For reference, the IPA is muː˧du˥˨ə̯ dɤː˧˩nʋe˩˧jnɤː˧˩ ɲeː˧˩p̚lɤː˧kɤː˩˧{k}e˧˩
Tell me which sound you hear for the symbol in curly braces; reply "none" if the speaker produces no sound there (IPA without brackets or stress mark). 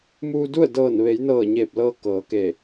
k